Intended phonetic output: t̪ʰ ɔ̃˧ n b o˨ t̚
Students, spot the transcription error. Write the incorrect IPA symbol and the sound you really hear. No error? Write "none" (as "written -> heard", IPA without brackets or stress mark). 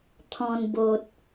none